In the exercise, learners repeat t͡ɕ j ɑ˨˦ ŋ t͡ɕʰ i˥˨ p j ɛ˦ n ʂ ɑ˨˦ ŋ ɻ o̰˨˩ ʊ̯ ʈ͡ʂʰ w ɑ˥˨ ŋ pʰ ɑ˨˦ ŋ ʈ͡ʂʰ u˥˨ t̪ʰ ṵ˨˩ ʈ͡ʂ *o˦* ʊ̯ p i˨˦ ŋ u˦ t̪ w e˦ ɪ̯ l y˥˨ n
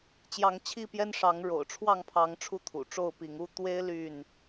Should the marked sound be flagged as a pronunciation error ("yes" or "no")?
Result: yes